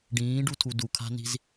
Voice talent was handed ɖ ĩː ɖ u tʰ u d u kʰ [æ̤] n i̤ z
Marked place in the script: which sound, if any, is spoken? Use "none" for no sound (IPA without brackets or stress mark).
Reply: a̤